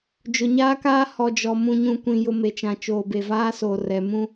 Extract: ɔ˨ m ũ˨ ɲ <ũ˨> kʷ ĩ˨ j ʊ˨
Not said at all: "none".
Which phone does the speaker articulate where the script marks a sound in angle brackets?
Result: ũ˨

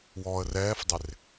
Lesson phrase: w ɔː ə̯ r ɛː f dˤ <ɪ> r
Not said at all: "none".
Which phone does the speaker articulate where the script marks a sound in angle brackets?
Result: ɪ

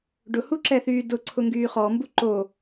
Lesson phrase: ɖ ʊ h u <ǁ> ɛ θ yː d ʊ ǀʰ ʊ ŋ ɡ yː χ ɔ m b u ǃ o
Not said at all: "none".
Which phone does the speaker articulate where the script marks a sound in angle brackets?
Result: ǁ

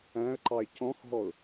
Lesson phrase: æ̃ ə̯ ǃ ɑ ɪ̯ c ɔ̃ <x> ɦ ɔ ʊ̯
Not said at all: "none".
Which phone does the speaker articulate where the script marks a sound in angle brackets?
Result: x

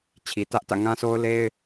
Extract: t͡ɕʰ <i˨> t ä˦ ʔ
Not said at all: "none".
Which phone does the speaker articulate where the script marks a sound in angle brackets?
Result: i˨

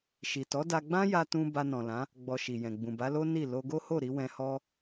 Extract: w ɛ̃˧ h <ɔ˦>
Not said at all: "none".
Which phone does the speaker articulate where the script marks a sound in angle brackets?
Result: ɔ˦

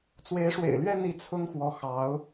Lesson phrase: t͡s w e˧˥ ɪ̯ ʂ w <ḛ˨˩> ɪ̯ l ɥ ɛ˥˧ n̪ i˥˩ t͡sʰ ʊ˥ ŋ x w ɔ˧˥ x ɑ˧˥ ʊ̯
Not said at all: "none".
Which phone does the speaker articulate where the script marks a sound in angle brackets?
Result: ḛ˨˩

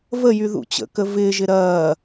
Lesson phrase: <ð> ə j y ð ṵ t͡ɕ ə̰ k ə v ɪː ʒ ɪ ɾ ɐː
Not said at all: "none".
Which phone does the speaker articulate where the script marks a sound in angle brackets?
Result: v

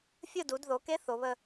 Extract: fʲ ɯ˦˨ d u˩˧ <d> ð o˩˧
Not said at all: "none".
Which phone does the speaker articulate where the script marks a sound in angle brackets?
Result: d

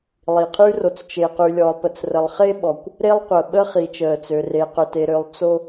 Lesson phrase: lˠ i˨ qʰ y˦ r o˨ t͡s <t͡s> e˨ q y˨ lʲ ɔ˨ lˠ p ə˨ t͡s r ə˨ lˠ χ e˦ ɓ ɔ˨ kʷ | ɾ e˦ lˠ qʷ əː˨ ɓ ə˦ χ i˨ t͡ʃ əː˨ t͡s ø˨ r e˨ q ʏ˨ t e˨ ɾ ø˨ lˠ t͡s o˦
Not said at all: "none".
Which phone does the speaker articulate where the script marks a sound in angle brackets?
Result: t͡ʃ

